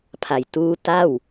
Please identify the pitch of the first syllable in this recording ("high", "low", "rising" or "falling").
low